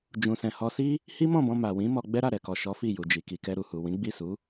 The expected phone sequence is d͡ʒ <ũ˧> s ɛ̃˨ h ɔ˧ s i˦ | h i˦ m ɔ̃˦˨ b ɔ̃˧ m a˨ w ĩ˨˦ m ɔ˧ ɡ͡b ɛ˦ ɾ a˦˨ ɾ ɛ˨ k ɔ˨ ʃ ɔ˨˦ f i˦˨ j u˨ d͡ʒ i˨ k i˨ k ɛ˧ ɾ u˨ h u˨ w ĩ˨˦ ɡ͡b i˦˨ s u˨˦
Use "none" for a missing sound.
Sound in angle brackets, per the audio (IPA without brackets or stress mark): ũ˨